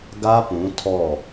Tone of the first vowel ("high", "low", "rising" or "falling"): high